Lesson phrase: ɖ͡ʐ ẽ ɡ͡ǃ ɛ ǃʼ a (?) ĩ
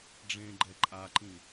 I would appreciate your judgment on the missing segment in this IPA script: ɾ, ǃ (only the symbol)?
ǃ